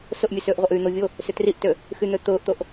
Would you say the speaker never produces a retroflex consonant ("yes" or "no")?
yes